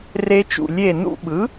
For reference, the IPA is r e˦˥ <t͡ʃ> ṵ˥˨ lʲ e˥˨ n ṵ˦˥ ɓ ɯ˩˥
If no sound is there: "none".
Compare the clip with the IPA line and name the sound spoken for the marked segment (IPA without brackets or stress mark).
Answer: t͡ʃ